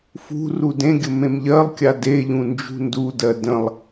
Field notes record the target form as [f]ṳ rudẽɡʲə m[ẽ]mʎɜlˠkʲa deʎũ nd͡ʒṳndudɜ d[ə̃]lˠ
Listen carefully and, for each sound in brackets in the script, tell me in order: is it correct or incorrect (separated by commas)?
correct, correct, correct